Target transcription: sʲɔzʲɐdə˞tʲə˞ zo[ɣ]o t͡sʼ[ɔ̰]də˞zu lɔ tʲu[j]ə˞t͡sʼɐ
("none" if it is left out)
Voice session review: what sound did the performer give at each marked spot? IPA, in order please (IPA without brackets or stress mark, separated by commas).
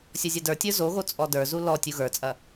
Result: ɣ, ɔ, ɣ